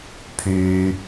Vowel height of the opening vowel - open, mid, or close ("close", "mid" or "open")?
close